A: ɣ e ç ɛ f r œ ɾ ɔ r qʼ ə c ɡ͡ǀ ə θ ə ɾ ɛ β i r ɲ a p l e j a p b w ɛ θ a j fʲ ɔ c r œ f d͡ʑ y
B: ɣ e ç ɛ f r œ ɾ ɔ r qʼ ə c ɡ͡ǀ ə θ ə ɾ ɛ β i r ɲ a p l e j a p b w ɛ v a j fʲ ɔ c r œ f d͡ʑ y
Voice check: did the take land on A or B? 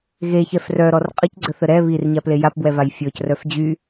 B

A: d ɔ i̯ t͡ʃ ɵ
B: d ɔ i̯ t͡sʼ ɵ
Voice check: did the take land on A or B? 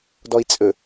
B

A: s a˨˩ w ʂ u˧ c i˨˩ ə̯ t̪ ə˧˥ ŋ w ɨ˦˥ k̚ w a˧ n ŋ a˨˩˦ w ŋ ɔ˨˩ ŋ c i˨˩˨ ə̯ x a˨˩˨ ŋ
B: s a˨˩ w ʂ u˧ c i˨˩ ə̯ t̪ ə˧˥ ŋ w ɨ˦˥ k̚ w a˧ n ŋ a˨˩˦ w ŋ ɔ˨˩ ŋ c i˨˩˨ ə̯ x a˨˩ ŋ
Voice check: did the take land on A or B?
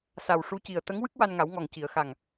B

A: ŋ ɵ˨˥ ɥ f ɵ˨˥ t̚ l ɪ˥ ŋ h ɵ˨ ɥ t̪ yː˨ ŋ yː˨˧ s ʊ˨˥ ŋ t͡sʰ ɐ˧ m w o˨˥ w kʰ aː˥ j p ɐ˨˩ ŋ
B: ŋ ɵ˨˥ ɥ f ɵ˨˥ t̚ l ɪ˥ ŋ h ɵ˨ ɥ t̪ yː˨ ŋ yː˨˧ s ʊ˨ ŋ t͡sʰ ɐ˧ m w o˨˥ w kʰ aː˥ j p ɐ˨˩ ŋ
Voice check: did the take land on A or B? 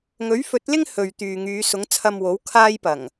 A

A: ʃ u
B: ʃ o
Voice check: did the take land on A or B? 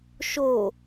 B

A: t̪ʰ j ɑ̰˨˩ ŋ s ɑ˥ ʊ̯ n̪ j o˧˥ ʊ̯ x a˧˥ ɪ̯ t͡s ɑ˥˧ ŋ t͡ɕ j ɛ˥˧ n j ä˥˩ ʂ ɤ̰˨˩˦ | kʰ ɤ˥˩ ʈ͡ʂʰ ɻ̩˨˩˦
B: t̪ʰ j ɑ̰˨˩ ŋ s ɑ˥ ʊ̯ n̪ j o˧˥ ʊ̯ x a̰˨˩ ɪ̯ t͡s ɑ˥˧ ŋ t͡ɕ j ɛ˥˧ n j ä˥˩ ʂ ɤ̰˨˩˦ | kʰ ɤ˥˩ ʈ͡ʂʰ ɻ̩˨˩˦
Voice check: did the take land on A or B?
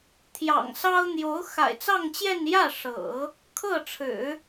B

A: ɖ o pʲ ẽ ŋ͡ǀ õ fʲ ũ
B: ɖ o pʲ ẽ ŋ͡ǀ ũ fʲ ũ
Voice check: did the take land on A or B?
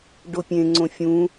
A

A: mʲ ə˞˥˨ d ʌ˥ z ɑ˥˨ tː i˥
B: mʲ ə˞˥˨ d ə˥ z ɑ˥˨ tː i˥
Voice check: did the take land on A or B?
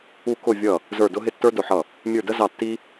B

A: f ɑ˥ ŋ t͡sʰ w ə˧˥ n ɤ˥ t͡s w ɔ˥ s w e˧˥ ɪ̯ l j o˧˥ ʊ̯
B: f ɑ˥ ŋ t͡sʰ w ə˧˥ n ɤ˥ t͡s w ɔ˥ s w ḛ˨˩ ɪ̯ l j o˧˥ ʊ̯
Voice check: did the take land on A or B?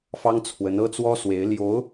A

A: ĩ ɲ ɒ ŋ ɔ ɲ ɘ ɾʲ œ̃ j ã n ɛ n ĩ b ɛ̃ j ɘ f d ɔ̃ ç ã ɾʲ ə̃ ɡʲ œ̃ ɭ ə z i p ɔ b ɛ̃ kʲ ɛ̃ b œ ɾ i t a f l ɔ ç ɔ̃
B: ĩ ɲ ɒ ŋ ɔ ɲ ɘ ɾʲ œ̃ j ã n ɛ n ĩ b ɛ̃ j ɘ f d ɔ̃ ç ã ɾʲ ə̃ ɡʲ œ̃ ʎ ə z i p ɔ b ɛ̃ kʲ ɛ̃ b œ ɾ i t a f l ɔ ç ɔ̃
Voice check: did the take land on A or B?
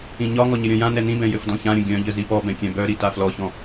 B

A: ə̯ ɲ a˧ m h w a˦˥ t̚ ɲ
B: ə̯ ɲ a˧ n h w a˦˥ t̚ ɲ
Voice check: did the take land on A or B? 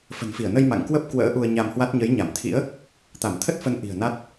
A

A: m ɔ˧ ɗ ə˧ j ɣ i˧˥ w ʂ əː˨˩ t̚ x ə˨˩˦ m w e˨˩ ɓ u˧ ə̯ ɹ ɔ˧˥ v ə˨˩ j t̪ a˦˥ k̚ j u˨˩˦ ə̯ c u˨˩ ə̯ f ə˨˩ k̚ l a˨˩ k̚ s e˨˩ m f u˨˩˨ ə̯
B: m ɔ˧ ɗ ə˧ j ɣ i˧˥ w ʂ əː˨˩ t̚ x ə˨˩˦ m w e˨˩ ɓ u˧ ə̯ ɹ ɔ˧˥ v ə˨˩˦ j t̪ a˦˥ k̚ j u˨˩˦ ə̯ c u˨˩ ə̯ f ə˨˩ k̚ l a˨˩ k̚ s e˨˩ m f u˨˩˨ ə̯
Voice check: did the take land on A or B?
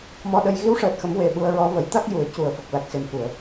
B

